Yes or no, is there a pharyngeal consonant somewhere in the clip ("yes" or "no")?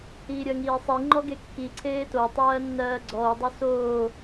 no